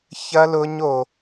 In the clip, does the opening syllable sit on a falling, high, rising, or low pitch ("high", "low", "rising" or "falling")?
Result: high